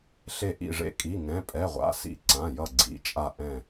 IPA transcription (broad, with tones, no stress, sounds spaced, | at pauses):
ɬ e˧˩ ʔ ḭ˧˩ ʐ ḛ˧˩ kʼ i˩˧˩ ŋ ɛ̃˩˧˩ pʼ ɛ˩˧˩ ʁʷ a̰˩˧˩ s ḭ˧˩ ǀ ã˩˧˩ j ʌ˧˩ ɡ͡ǀ ḭ˩˧˩ t͡ʃʼ a˧˩ ʔ ɛ̃˧˩